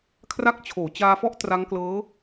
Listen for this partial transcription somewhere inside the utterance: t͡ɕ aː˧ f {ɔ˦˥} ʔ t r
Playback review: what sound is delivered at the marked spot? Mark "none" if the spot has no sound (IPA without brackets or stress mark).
ɔ˦˥